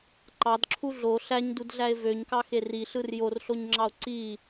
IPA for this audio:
ǃ ɑ d ǁʰ u ɮ o ɬ æ ɲ d u d ɮ æ e̯ v ø ɲ k ɑ x e r i ɬ ɯ r j o r ɬ o ɲ ŋ͡ǁ ɑ o̯ ǀ i

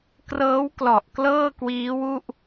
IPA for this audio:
k r ɤː˦˥ w k l ɔ˨˩ ʔ k l ɤː˥˩ k w iː˦˥ w u˥˩ ʔ

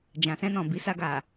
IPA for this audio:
d͡ʒ ã˨ s ɛ̃˧ n ɔ̃˨ b i˨˦ s a˧ ɡ a˨

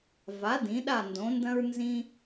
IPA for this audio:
v a˩˥ d ĩ˩˧ ɗ a˥˨ n d õ˩˥ n d ɐ̃˥ ɹ n z ĩ˥

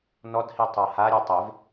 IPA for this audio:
n ɔ d h i tˤ a h a ɾʲ e tˤ e v

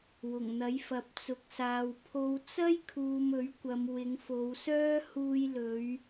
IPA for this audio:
w ʊ˨˩ ŋ n̪ ɐ˨˥ j f ɐ˨˥ p̚ t͡s ʊ˨ k̚ s aː˨ w pʰ o˨ w t͡s ɐ˥ j kʰ uː˨ m ɵ˨˥ ɥ kʷ ɐ˨˧ m w ɪ˨˧ ŋ f o˨˧ w s œː˥ h uː˧ j l ɵ˨˧ ɥ

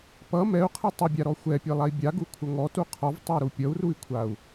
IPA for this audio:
p ʌ m ɛ u̯ qʰ ɛ tˤ ʌ bʲ a ɾ ɔ xʷ ɛ pʲ ɛ lˠ a i̯ bʲ a ɡ u kʷʰ ʌ ŋ ɔ t u qʰ ɔ v tˤ ɛ ɾ u pʲ ʌ u̯ r u i̯ kʷʰ a u̯

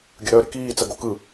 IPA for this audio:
ɡʲ ə ɾ œ ɾ ɪ k iː t͡s ɐ ɡ o k ɯ

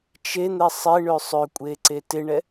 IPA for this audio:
t͡ʃ e n̪ ɛ sˤ ɪ ɳ ø sˤ ø kʷʼ e ǀ e t ɪ ɳ ɛ

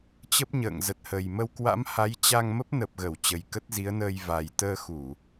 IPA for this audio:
t͡ɕ ə˦˥ p̚ ɲ ə̰ː˧˨ ŋ z ə˨˩ t̚ h ə˨˩ j m ə˧ w k w a̰˧˥ m h a˨˦ j t͡ɕ a˧ ŋ m ə˦˥ p̚ n ə˨˩ p̚ ɣ ə˧˩ w t͡ɕ ə˨˩ j k ə˦˥ t̚ z i˨˦ ə̯ n əː˧ j v a˨˩ j t̪ əː˧ x u˧˩˨

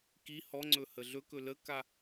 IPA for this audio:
k i h ɔ ŋ͡ǀ ɵ h ə ɮ ɵ k ɵ l ə k a

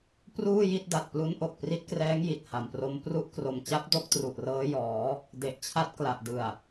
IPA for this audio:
p r uː˥˩ j i˥˩ t̚ d a˨˩ t̚ p l u˦˥ n ʔ o˨˩ k̚ p r i˦˥ t̚ k r ɛː˦˥ ŋ j i˨˩ t̚ h a˨˩ m p r o˦˥ m p r u˥˩ ʔ k r o˨˩ m t͡ɕ a˦˥ p̚ d o˦˥ k̚ t r u˨˩ ʔ r ɤː˦˥ j ɔː˩˦ | d e˨˩ ʔ t͡ɕʰ a˦˥ t̚ k l a˨˩ ʔ d ɯ˨˩ a̯

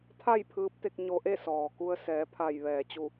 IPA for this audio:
t̪ʰ a˥˨ j pʰ ɯː˧˥ p̚ t̪ e˧ k̚ ɲ o˧ ʔ e˥˨ s ɔː˩ k u˧ ə̯ s ɛː˩˧ pʰ a˧˩ j ʋ ɛː˩ t͡ɕ u˧˩

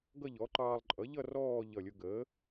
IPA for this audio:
ɡ ʌ˥˧ ʎ ɔ˩˥ ǃ ɑː˧ lˠ ǃʼ ʌ˩˥ ʎ ʌ˥˧ r ɔː˥˧ ʎ ʌ˧˩ lʲ ʊ˧ ɡ əː˩˥

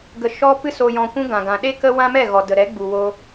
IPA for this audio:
ɡ ə˨ ʃ ɔ˧ p ɨ˧ s o˨ j ɔ̃˨ kʷ ũ˧ ɡ ã˨ ɡ ã˨ ɗ e˦ k ə˦ w ã˦ m ɛ˦˨ ɣ ɔ˨ d ə˨ ɾ ɛ˨˦ ɡ͡b u˨ w o˧

